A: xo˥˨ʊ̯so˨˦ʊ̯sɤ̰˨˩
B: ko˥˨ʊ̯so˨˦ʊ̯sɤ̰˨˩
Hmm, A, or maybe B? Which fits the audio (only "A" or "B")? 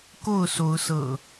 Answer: B